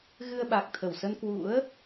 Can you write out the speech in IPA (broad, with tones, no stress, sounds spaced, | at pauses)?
ɣ ɨ˧ ə̯ ɓ a˨˩ k̚ t̪ʰ ə˧˩ w s ə˧ n k w ṵ˧˥ ə̯